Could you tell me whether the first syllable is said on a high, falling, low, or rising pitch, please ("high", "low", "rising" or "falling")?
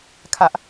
high